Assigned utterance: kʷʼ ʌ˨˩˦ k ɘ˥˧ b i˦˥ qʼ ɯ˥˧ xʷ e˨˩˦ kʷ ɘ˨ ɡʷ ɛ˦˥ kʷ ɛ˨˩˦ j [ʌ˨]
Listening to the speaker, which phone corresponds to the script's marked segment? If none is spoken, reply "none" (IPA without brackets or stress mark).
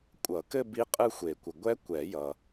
ʌ˨